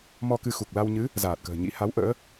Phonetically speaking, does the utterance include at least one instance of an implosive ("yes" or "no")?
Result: no